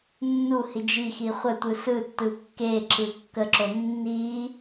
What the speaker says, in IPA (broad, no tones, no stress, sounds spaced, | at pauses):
nː u h i d͡ʒ i x i χʷ ə tʷ ɯ s ɯ tː ɯ kː e ǁ ɯ kː ə ǁ o nː i